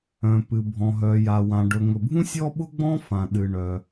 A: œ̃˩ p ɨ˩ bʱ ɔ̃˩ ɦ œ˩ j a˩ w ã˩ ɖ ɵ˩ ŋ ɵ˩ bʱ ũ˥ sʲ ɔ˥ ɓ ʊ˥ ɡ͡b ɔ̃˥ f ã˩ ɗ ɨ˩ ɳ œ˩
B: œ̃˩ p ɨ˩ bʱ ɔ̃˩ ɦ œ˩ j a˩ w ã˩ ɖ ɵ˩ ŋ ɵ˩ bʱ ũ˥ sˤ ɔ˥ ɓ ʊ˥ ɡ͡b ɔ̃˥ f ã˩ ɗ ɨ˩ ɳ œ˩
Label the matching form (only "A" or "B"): A